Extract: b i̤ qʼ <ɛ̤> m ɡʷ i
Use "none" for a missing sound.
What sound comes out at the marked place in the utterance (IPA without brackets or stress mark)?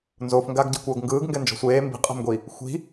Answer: ɛ̤